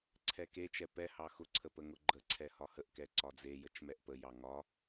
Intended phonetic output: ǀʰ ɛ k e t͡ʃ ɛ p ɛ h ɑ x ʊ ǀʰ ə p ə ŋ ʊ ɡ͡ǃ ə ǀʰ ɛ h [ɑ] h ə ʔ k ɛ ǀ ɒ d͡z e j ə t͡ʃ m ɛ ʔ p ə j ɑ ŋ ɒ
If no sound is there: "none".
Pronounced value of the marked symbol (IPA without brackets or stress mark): ɒ